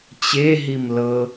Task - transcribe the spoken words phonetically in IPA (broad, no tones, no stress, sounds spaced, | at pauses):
t͡ɕ e ɦ i m l ɤ